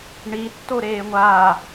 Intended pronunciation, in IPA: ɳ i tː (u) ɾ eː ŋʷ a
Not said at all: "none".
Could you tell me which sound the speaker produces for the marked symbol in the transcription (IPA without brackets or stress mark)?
o